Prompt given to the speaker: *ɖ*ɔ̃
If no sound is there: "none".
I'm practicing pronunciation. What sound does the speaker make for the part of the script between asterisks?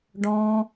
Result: ɖ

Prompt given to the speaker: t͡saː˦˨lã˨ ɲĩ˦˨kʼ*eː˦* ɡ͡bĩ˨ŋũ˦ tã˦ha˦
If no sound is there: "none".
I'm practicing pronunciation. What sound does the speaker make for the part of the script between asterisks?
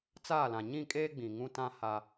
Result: eː˦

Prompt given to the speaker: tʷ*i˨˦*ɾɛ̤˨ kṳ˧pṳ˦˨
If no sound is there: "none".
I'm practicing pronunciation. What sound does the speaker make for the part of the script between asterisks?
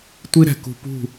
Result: i˦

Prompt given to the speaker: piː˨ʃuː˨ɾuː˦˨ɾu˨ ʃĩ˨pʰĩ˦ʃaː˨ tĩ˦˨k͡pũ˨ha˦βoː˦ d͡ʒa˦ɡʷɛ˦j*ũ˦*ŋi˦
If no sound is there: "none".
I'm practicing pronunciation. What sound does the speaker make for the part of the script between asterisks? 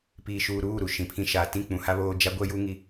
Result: u˦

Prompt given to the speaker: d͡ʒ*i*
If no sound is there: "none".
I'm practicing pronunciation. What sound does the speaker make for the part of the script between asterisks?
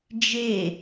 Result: e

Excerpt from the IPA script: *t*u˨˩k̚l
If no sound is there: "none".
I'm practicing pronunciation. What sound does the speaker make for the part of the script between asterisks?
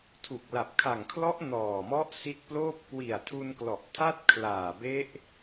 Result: tʰ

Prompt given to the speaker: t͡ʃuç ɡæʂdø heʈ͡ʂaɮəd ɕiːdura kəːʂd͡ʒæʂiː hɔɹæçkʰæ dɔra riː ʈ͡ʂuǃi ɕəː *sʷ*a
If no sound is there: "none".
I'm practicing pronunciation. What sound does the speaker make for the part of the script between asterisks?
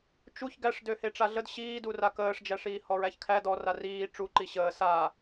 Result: s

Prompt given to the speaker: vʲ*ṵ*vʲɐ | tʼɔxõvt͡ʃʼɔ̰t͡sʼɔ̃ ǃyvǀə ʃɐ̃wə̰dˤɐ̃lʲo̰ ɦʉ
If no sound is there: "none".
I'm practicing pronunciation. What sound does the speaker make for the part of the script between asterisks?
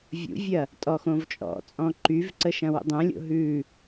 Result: ṵ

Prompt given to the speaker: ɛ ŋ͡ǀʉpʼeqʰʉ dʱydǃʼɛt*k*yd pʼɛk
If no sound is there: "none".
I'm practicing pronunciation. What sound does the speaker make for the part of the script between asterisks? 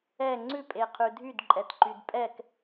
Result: ǃ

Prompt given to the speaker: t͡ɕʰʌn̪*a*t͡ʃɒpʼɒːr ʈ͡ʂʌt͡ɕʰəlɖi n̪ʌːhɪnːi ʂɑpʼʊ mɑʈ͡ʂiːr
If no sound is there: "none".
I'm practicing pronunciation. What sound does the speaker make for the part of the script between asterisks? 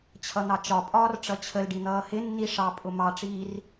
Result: ɑ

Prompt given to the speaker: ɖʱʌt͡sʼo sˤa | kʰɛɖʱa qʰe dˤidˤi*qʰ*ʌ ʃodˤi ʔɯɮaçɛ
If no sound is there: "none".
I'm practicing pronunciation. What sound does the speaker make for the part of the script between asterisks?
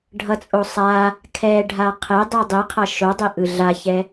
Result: qʰ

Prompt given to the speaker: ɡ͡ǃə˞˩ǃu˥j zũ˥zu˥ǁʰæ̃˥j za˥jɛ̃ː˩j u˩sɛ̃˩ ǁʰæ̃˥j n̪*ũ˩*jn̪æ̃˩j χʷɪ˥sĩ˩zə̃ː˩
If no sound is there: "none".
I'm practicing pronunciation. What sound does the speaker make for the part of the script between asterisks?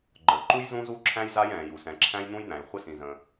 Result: ũ˥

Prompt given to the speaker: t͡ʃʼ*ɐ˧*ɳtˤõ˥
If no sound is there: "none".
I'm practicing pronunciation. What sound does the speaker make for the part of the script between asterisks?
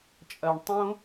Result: ɐ˧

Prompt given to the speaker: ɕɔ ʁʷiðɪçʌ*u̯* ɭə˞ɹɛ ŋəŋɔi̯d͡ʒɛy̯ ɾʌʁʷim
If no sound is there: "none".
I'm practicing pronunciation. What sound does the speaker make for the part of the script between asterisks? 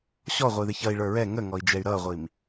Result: i̯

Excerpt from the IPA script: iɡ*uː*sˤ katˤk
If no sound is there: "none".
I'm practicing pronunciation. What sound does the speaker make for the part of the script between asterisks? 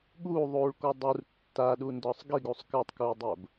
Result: u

